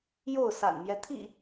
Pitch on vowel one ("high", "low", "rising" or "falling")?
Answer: falling